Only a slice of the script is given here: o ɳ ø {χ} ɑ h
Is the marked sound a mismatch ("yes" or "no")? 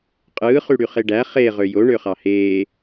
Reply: no